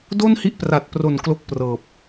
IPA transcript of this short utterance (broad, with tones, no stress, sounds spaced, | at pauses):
d o˥˩ n h i˦˥ ʔ p r a˨˩ t̚ p r o˨˩ n k l o˥˩ k̚ p r ɤː˨˩ p̚